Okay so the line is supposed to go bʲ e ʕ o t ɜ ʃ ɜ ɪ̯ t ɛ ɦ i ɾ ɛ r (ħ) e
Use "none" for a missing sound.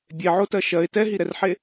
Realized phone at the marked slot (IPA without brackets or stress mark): ħ